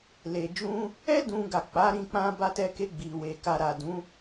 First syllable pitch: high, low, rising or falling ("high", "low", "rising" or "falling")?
low